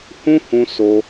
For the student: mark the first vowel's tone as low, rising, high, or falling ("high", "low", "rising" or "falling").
high